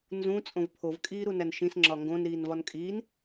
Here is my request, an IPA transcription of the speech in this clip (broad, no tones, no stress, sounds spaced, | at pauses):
n z ũ t͡sʼ õ v pʰ o v kʼ iː ɾ u n æ n ʃ ĩ s ŋ͡ǁ ɒ ŋ ɡ õ n ɾ iː n v ɒ n kʼ iː n